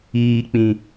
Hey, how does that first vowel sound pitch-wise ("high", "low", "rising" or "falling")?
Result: low